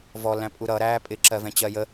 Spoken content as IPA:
v ɔ l æ̃ pʼ u ɾ ʌ ɾ æː pʼ ɪ ǁ ɜ v ɛ̃ t͡ɕ ɜ j ə

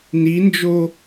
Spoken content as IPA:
n i n d͡ʒ o

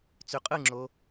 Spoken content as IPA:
t͡s y qʼ ɯ ŋ͡ǁ o

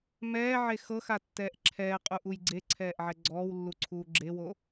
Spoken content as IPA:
m ɛː ʕ e x ɤ x a tː ɛː ʔ ǁʰ ɛː qʼ u ʔ u j ɡ͡ǀ e ǀʰ ɛː ʔ ʕ ɛ ɡ͡ǀ ɔː w lː u ǀʰ uː ɡ͡ǁ e w o

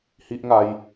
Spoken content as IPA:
h i˦ ʔ ŋ a˧ j

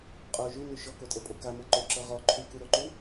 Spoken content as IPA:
qʼ o ʒ y n y ʃ ɔ k o tʼ ɤ pʼ o k a m ɤ ǃ o ǁ ɤ ʁ ɔ ǃʰ y k u ɾ o ǃ u

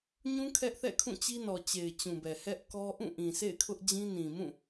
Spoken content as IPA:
ɲ ũ˦ kʰ ɛ˦ ʔ θ ɛ̰˦˨ kʰ ũ˦˨ t͡ɕ i˦ n ɔ˨ t͡ɕ e˨ ɪ̯ t͡ɕ ũ˨ b ɛ˨ h ɛ˦ ʔ k ɔ˦ ʔ ũ˦˨ ʔ ĩ˨ sʰ ḛ˦˨ ɪ̯ kʰ ʊ˦ ʔ d͡ʑ ĩ˦ n ĩ˨ m ũ˦˨

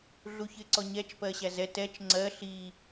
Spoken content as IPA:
ɮ u ç ɪ ǀ ɔ ɲ ɛ t͡ʃ p ɜ ɕ æ z ɛ t ɛ t͡ʃ ŋ͡ǀ ɜ ɬ i

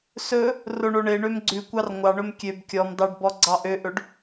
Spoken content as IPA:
s ɵ | r o ɳ o ɳ e ɳ ø m ɡ͡ǀ ʉ kʷ ɑ r ŋʷ ɑ ɳ ɵ m kʲ ø b kʲ ɔ m d ɑ ɖ b ɔ ɡ͡ǀ ɑ ʔ ø ʔ ɵ ɖ

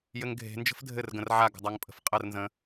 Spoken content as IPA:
j ɘ ŋ ɡʱ e̤ n d͡ʒ ə̤ f dʱ ɘ r ɡ ə̃ r ʕ a ɡ ə̤ dˤ a ŋ pʼ ə̤ f qʼ ə r n z ə̃

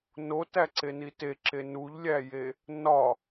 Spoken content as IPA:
n o t æ ǀ e n i t e ǁ e n u ʎ lʲ æ j e | n ɒ

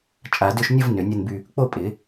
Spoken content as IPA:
t͡ʃʼ a˨˩˦ d ʏ˥˧ ʃ nʲ ə˥˧ v n ʏ˨˩˦ nʲ ə˥˧ n b y˥˧ | k͡p o˥˧ pʼ ɪ˨˩˦

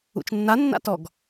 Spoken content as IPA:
ṵ t͡ʃ nː a nː a̰ t ɔ ɡ

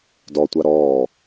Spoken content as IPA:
d ɔ tʷ a ɾ ɔː

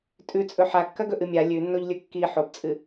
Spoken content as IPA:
tʼ ʉ t͡sʼ ɵ ħ a kː ɐ ɡ ɵ ʔ ɨ mʲ a lʲ ʉ nː o ʎ lʲ ɵ kː i ħ o b t͡sʼ ɨ

